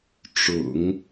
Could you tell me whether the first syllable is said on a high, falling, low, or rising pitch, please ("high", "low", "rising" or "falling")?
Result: low